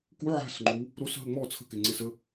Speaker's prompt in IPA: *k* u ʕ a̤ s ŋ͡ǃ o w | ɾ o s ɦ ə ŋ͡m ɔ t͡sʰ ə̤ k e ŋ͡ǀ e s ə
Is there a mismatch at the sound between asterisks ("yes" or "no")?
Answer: no